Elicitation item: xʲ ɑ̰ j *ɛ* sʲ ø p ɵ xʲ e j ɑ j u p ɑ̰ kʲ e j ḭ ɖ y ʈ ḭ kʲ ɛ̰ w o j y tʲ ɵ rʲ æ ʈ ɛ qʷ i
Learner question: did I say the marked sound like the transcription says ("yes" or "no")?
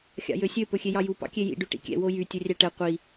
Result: no